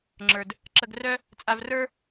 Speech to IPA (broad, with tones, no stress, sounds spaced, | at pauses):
ŋ͡ǁ ə˞˨ d | ǁ ə˧ ɡ r œ˦ | t͡sʼ a˧ v r ə˞˦